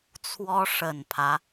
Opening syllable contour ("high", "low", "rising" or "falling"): high